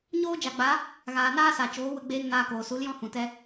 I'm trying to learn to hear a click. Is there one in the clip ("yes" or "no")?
no